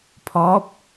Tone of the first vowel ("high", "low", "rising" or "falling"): rising